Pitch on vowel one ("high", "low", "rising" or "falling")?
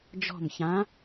falling